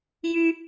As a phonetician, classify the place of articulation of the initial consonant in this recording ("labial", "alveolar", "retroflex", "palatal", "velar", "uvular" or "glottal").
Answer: palatal